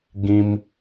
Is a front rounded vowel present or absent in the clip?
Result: absent